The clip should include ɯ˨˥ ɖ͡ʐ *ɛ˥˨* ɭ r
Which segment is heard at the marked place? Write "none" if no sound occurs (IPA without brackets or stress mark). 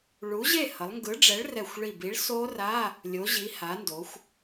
ɛ˨˥